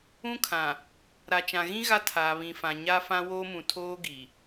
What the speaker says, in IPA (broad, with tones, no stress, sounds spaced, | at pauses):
ũ˦ kʰ ã˨ | ɾ a˨ t͡ʃ ã˨ ɣ ĩ˦ ɣ a˦ tʰ aː˨ β ĩ˨ f ã˨ ɲ a˦ f ã˦ w oː˦ m ũ˨ tʰ oː˦ ɡ i˨